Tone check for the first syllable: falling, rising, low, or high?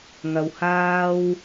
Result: low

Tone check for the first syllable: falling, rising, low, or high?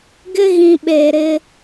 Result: high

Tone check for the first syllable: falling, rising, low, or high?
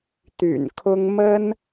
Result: low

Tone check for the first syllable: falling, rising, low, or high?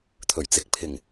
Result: low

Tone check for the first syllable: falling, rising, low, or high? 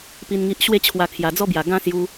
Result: low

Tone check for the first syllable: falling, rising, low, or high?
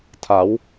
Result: rising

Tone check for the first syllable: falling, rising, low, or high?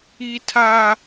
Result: high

